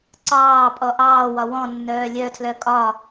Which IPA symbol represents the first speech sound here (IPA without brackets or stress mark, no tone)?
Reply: ǀ